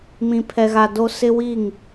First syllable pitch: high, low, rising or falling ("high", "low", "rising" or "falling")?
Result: high